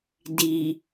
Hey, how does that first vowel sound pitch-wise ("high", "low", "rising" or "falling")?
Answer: low